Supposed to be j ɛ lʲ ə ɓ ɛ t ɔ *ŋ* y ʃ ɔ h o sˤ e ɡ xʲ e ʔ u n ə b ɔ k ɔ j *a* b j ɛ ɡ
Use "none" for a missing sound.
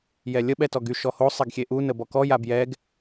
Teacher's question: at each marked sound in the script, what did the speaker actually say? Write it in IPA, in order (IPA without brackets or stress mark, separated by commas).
ɡ, a